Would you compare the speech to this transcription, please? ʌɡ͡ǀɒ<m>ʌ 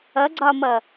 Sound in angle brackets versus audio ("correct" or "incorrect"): correct